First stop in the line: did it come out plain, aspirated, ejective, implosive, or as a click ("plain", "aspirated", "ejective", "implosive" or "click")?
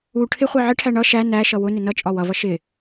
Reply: aspirated